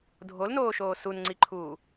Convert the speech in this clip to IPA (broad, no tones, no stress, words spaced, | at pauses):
dʱolnoːʃoː sunŋ͡ǀiǃʰuː